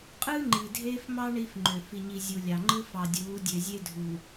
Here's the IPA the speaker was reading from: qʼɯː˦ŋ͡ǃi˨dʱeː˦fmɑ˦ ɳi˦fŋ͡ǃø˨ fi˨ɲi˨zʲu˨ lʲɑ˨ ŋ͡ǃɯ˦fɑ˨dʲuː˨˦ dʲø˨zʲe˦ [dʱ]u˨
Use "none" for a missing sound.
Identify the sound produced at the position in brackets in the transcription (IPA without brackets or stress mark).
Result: dʱ